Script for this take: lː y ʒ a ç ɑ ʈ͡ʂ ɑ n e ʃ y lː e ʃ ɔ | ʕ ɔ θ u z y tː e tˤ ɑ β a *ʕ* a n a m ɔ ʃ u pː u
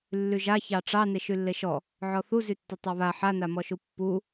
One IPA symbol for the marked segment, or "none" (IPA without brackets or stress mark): ħ